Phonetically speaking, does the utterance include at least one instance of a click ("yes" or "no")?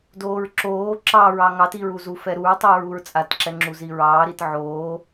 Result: yes